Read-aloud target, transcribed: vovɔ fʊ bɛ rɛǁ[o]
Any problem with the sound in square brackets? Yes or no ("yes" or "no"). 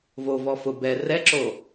no